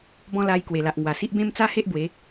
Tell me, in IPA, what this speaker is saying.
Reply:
bɔ̃˦ la˧j kwe˨˩la˨ʔŋwa˨˩si˦ʔ bẽ˦mt͡sa˦he˦ʔ bwe˨˦

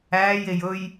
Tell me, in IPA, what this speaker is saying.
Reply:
æːjej ɵj

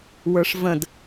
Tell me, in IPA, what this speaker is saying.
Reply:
wə˞ʂvə̃d

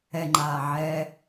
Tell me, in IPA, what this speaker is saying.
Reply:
ɛŋ͡ǃaː ʕɛ

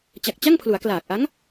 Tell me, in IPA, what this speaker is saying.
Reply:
t͡ɕa˨˩k̚t͡ɕa˥˩ŋpʰlu˩˦a̯ klaː˨˩k̚ʔa˦˥ŋ

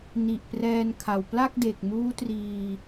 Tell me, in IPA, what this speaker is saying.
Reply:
ni˨˩ʔprɛː˧nkʰa˨˩w pla˥˩k̚de˨˩k̚ muː˦˥triː˧

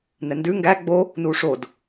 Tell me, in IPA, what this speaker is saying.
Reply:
nɛndʉ ŋɡæ ɡ͡bo | nuʂod

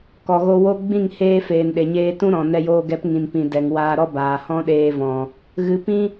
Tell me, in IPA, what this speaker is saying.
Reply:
kɔ˨ɣo˧wo˦ ɡ͡bĩ˦˨ŋheː˧ feː˨nɗe˨ɲeː˧ tũ˦ɾɔ̃˨nɛ˧joː˧ ɡɛ˨˦pŋĩ˨npĩ˨ dɛ˨ŋwaː˧ɾɔ˦baː˨ hɔ̃˦ɗeː˧vɔ̃˨ | ɣɨ˨pĩ˦

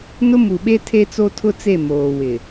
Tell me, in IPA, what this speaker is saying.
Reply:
nʊ˦mu˨ɓe˦ tʰe˦t͡so˦tʰʊ˦t͡se˦˨ moː˨wɪ˨

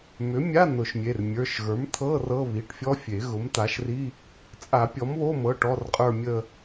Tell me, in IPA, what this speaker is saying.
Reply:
mʏ˩˥ mʲa˧˥˧ nʊ˨˩˦ʃmʲe˩˧˩r mʲə˞˩˧˩ʃɣə˞˩˥mt̪ʰɤ˧˥˧ rɤ˧˥˧ βi˩˧˩ʈfʲɔ˦˥fʲe˨˩˦ ɣʊ˩˥mt̪a˩˥ʃri˧˥˧ | t͡sʼa˨˩˦pʲɔ˩˥mβo˧˥˧mɤ˩˧˩ ʈɔ˧˥˧rqʼə˞˥˧mʲə˥˧

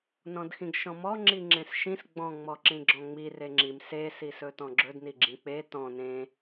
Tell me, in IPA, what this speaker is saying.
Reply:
nɔ̃dxĩɡʃɔ̃mɔ ŋ͡ǁiŋ͡ǁẽsʃĩs ɡ͡bɔ̃ ŋ͡mɔǁĩɡ͡ǁɔ̃ŋ͡mir eŋ͡ǁim se sisɵtɔ̃ɡ͡ǁɵd niɡ͡ǁĩk͡pe tɔ̃ nẽ

